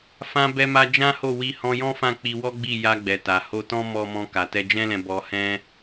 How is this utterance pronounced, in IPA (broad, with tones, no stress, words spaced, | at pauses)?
fã˧ bɛ˧ma˧ d͡ʒã˦ho˦˨wi˧ hɔ̃˧jɔ̃˦fã˦˨ k͡pi˧wɔ˦ɡ͡bi˦˨ ja˧ɡ͡bɛ˨ta˨ ho˧tɔ̃˦mɔ˧mɔ̃˧ ka˨tɛ˧d͡ʒɛ̃˦lɛ̃˧ bɔ˧hɛ̃˦